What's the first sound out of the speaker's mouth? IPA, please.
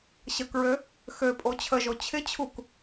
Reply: ɕ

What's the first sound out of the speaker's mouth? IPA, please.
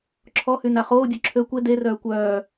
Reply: ǁʰ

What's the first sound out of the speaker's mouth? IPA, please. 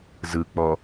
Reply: z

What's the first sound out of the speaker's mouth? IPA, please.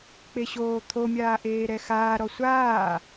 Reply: k͡p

